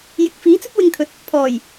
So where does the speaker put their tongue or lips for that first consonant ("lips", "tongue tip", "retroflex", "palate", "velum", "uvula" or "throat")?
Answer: palate